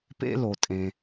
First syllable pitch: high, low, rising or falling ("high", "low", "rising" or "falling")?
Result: high